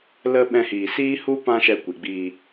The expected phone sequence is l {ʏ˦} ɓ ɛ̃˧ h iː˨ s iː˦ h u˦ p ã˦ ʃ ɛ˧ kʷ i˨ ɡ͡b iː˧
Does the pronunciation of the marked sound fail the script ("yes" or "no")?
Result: yes